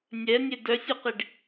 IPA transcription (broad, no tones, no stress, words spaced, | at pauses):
nʲɛnʲe dœsʲœqiɖ